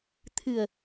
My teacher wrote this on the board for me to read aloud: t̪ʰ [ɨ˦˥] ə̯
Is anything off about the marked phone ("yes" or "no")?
yes